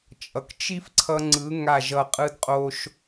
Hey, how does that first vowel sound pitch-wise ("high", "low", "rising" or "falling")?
low